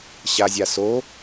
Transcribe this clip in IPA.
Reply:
ɕ a zʲ a s o

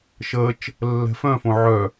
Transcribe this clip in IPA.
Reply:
ʃ əː t͡ʃ | lː ɛ̤ f œ̃ f õ ʕ œ

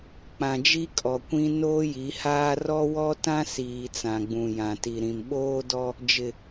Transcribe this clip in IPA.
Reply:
k͡p ã˨ d͡ʒ i˦ kʼ ɔ˨ kʷ ĩ˦ n oː˦ j i˨˦ h aː˦ r ɔ˦ w ɔ˦ t ã˦ s iː˨ t͡s ã˨ ɡ͡b ũ˨ j ã˨ t i˨ ɾ ĩ˨ m ɓ oː˦ d ɔ˦ | d͡ʒ ɪ˨

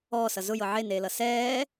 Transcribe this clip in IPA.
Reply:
ɔː s ʌ z ʊ j ɤ ʕ e n eː l ʌ s ɛː

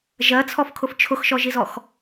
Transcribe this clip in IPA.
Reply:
ʒ ɜ t͡sʰ ɔ f kʰ ʊ f t͡ʃʰ ʊ x ʃ ɔ ʒ i z ɔ x

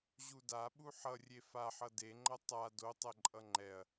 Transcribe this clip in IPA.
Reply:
ʑ u d a ɓ u ħ ʌ rʲ e f a ħ ʌ d e ŋ͡ǃ ʌ tˤ a d o tˤ ɛ ǃʼ ʌ ŋ͡ǃ ɛ ɐ̯

